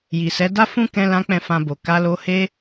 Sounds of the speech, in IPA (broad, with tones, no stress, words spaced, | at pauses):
ji˨sɛ˨˦ da˦fũ˦kɛ̃˧ lã˦k͡pɛ̃˦˨fã˧bo˨ ka˨˦lo˧he˦